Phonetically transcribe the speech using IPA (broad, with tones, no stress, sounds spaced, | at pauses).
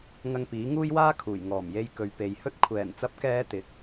ŋ ɐ˧ ŋ p iː˨˥ ŋ uː˥ j w aː˥ kʰ uː˨˩ j ŋ ɔː˨˩ m j e˨ j k ɵ˨ ɥ p e˨˧ j h ɵ˥ t̚ kʷʰ ɛː˨˩ n t͡s ɐ˨˥ p̚ k ɛː˨˧ t̪ ɪ˨˥ k̚